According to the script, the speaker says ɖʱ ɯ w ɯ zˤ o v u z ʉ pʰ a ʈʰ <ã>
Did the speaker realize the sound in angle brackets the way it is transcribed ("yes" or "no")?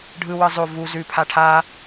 no